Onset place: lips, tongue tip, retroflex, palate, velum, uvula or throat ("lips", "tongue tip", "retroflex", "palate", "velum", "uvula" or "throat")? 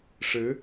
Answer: retroflex